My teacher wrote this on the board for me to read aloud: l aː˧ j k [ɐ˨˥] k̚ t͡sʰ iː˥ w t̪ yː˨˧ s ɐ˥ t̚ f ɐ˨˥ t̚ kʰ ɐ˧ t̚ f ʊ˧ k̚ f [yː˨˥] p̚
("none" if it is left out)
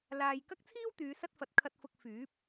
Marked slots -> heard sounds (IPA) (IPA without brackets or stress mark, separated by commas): ɐ˥, yː˨˥